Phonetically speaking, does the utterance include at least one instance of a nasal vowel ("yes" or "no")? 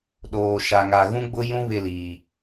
yes